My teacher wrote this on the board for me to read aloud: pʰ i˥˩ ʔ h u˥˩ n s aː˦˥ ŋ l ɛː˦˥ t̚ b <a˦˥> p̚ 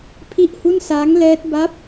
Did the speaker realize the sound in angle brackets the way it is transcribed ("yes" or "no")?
yes